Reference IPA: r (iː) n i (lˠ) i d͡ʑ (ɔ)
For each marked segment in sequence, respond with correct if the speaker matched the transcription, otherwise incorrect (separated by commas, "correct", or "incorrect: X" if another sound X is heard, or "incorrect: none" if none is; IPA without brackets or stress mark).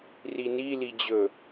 incorrect: i, incorrect: l, incorrect: ɵ